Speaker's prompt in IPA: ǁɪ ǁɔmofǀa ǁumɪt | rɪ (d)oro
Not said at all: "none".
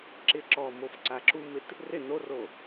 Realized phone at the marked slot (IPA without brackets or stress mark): n